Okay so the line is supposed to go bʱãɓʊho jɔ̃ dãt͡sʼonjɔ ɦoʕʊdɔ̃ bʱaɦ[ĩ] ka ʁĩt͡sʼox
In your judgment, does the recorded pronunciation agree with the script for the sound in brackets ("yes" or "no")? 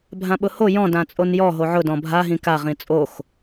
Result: yes